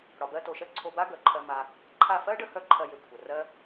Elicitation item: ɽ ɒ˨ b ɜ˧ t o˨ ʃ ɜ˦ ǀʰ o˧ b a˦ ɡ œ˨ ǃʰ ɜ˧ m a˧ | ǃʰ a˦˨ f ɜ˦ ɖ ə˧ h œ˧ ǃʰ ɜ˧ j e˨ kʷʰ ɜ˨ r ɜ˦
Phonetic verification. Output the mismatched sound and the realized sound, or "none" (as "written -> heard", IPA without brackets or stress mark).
none